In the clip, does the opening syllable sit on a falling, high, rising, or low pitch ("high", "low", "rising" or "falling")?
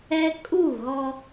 high